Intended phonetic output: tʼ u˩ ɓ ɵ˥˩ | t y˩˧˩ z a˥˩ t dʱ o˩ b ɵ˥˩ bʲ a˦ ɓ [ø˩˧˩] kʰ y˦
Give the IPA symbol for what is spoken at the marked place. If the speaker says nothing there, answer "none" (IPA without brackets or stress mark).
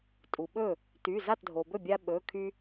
ɵ˩˧˩